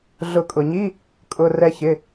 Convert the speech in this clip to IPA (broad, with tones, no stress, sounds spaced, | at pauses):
ɮ ʊ˨˩˦ kʼ ʊ˩ ɲ i˧˥˧ | kʼ ʊ˩˧˩ r ɛ˧ ç ɪ˩˧˩